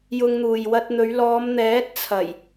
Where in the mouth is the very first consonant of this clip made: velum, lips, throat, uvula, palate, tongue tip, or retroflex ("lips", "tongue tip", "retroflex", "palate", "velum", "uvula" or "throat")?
palate